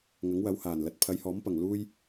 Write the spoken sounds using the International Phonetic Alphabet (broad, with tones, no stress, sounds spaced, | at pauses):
ŋ ɐ˨˥ ŋ w ɐ˨˧ w h aː˨˩ n l ɐ˨ t̚ pʰ ɐ˨˧ j h ɔː˨˥ m p ɐ˨˩ ŋ l uː˥ j